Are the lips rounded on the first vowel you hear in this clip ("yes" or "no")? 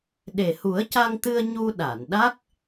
no